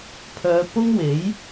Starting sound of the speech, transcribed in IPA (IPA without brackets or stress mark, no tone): pʰ